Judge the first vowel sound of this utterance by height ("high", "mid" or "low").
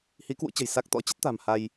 high